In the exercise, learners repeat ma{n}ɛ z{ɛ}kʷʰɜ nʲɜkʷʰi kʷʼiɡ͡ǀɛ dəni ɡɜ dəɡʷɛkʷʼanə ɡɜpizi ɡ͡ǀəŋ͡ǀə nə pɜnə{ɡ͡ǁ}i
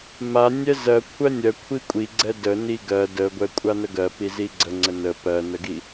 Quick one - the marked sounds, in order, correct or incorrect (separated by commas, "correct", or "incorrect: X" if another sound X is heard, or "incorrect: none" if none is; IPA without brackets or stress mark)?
incorrect: nʲ, incorrect: ɜ, incorrect: ɡ